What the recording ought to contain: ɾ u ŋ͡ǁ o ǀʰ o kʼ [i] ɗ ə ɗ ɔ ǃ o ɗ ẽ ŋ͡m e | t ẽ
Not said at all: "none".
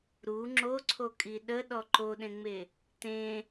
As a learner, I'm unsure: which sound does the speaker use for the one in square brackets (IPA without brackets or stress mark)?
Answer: i